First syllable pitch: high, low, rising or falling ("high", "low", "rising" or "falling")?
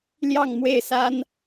falling